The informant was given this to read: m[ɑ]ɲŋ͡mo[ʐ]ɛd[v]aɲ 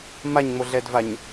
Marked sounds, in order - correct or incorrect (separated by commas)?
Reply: incorrect, incorrect, correct